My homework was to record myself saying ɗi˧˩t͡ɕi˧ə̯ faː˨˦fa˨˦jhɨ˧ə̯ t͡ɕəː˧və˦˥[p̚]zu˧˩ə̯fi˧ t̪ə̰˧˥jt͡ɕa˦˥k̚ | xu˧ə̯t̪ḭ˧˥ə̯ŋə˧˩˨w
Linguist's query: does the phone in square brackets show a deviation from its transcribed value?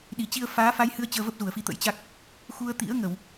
no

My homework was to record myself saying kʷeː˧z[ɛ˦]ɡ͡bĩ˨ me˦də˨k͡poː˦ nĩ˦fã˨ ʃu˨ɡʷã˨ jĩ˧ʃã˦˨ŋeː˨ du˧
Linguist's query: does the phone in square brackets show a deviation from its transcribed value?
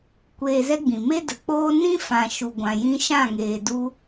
no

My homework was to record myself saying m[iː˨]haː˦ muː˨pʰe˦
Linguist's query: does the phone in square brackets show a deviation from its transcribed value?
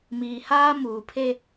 no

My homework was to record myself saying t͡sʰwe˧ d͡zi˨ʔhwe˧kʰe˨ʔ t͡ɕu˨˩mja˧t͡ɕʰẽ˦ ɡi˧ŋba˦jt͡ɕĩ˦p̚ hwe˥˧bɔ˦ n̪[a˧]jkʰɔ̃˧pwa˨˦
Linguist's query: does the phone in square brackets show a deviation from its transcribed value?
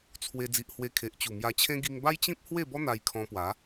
no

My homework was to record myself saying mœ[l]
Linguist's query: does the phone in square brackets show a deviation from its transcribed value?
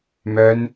yes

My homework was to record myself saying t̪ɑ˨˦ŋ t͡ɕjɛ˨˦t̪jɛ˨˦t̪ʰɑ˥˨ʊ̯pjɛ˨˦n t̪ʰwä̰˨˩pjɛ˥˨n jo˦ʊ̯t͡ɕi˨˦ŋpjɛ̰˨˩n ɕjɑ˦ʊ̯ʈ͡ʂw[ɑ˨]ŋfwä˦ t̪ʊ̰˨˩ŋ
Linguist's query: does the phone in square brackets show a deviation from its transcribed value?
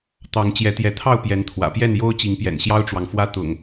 no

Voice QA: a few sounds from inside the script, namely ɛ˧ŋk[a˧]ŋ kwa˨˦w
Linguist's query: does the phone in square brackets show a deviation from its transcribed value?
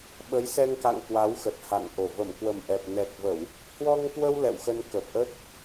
yes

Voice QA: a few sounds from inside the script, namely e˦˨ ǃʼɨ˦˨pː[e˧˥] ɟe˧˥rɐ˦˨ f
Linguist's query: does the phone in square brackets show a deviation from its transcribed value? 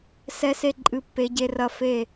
no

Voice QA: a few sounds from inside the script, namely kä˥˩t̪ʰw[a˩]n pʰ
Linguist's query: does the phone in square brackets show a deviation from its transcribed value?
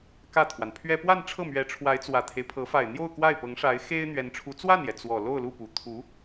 no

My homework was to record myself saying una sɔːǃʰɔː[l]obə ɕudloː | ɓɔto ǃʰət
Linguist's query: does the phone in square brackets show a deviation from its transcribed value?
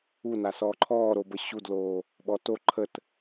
yes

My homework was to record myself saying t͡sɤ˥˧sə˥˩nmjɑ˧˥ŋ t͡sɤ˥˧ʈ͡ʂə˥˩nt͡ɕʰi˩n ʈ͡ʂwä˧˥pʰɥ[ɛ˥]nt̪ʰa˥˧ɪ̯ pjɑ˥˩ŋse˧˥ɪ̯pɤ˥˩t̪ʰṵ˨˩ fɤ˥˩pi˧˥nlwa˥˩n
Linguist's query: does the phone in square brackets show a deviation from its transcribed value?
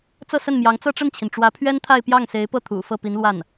no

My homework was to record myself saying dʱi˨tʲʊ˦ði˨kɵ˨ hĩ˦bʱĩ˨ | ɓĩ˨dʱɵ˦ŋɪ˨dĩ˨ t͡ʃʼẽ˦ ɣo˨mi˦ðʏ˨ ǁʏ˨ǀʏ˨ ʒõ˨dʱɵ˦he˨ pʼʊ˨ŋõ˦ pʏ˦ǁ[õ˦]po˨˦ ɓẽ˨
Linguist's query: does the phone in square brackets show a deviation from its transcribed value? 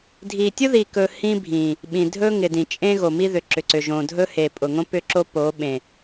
yes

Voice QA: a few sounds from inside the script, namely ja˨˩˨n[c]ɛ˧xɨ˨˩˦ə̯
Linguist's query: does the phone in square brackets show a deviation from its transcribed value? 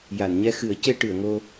yes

